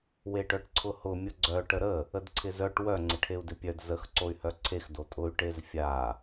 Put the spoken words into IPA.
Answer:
w e ʈ œ ʈ ǀʰ ʊ h ʊ mʲ ʊ ɡ͡ǀ œ ʈ ə ɾ ə | ə d ǀʰ ɪ z œ ʈ w œ ŋ͡ǀ ɪ ʈʰ e u̯ d ɪ pʲ œ d z ə x ǀ o y̯ h œ ǀʰ e x d o tʼ ʊ y̯ ʈ e z fʲ a

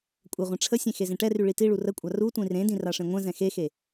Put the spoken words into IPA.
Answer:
kʷʼ ə ʁʷ ɛ̃ ʈ͡ʂʰ ə sʲ ẽ x e z ẽ ʈ ɛ r y ɭ i t i ɭ u r ə kʷʼ a r u tʷ ĩ r ẽ d ĩ r a ʂ ẽ ŋʷ ɛ̃ z ɛ̃ x e x e

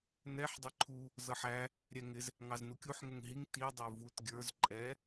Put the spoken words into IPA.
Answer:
n ɛ ħ dˤ ɪ ǃʰ u | z ʌ ħ æ | ɾʲ ɛ ŋ ɪ z | ŋ ɑ z n u kʲ u ħ ŋ ə ŋ ɦ i ŋ t i dˤ ə˞ v u t ɡʲ ə˞ z ǃʼ ɛ

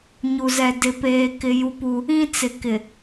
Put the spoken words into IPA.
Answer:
ɲ u˨ z ɛ˨ d ɪ˨ p eː˦ k ɪ˦ j u˦ p u˦ | ĩ˦ t͡s ɪ˨ k ɪ˨

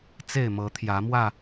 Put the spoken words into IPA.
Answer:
t͡s e˥˨ ɪ̯ m ɤ˨˦ t̪ʰ j ä˨˦ m w ä˥˨

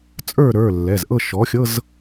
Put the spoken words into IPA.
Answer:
t͡sʼ ə˞˥˨ ɾ ə˞˩˧˩ lː ɛ˩˧˩ z ʔ ɤ˥˨ ʃ ɔ˩˥ xʲ ɤ˧˥˧ z

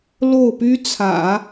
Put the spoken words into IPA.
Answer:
l o˥˩ ʊ̯ p y˥ t͡sʰ ä̰˨˩˦

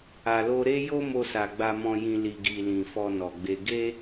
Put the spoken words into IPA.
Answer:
a˨ l o˧ ɾ e˦ j o˦ m o˧ s a˨ ɡ͡b a˧ m ɔ̃˧ j ĩ˧ l i˧ ɡ i˧ l ĩ˧ f ɔ˧ n ɔ˨ ɡ͡b e˧ ɡ e˦

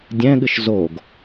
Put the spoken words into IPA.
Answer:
dʲ ɛ̃ ɠ ɨ ʃ z o ɡ

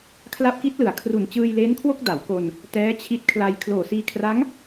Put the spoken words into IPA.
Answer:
kʰ l a˦˥ p̚ k i˦˥ t̚ l ɯ˩˦ a̯ kʰ r u˨˩ n t͡ɕ ɯː˧ j l eː˦˥ n kʰ w o˥˩ k̚ d a˩˦ w k o˧ n | t ɛː˦˥ t͡ɕʰ i˦˥ t̚ kʰ l a˧ j kʰ l oː˨˩ s iː˧ kʰ r a˦˥ ŋ

